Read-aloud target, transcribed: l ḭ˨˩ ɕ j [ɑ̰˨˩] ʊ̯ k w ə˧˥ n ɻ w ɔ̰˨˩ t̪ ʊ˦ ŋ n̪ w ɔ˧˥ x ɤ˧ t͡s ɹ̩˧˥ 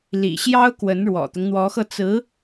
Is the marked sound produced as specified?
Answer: no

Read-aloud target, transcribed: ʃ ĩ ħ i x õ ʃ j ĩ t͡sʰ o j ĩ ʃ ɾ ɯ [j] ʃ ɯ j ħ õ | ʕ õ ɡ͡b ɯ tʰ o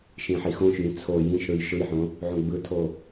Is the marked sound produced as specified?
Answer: yes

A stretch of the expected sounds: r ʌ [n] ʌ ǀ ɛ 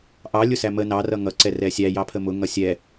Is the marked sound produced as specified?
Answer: no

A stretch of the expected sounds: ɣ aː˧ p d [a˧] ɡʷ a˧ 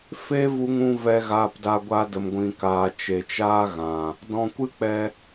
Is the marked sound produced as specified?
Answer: yes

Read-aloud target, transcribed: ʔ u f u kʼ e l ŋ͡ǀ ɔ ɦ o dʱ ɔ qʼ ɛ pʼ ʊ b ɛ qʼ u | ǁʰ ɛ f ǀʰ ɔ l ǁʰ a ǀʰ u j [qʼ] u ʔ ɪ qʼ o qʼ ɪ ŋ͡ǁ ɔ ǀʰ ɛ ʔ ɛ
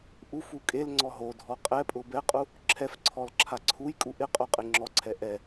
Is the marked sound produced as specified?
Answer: no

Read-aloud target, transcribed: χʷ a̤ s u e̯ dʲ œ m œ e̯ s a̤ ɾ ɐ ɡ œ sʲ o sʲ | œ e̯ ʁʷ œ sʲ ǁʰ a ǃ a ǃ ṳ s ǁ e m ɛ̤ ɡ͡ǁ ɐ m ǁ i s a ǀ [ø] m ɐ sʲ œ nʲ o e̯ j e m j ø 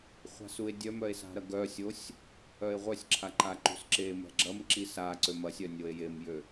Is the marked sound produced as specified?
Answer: yes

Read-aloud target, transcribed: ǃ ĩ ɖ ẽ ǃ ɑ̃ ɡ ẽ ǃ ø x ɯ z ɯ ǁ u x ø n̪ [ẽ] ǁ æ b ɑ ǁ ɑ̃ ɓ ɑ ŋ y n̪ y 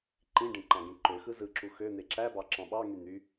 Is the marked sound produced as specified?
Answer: no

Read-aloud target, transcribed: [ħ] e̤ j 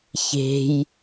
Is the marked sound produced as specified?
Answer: no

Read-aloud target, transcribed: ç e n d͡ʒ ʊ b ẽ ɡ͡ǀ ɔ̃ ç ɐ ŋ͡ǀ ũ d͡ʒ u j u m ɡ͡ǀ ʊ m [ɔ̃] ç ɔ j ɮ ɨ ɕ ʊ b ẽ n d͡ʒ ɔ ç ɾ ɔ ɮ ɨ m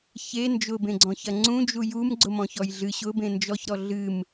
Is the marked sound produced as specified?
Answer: yes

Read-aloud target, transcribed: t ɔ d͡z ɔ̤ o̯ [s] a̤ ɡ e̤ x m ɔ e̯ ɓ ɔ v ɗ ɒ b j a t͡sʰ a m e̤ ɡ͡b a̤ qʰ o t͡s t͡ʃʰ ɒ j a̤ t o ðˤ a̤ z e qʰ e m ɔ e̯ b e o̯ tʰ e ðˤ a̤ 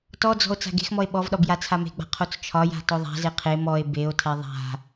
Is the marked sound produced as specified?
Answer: no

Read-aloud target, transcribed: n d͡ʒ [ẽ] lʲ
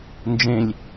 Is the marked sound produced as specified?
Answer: yes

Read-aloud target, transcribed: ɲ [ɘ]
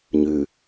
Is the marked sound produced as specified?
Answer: no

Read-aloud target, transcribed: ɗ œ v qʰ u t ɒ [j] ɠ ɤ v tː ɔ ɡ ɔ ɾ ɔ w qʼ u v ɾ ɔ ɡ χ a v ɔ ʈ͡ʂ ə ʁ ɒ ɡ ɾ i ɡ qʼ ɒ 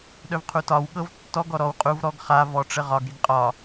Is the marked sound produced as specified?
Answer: no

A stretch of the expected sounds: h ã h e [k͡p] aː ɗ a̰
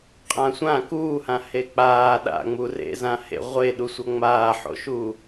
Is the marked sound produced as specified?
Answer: yes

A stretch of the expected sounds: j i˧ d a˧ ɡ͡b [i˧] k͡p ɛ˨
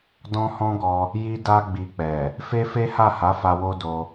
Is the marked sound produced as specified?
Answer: yes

